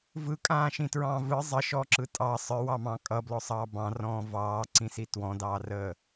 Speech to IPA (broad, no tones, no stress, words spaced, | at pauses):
vɯkʼãːʃĩtɹɑ̃ː vɯ zˤəʃɔǁɯ tʼɑ sˤə˞wɑmɑ̃ː kʼʌblɔsˤɑː bɑ̃rɔ̃ː vɑːǀĩsi twɔ̃dɑːrəː